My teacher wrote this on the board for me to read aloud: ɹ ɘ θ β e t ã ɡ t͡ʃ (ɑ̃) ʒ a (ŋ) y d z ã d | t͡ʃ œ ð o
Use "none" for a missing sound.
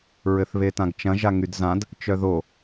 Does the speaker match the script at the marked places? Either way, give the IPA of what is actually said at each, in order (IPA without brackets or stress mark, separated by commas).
ɐ̃, ŋ